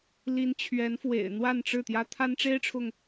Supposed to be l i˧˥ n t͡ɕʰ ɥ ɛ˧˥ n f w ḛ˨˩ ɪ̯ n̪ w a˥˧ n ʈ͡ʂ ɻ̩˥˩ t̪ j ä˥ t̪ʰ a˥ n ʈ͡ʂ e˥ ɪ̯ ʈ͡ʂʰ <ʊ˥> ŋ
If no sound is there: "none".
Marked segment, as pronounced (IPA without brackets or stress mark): ʊ˨